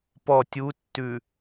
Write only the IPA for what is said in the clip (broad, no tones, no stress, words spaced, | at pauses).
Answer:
pɔ tʲutːʉ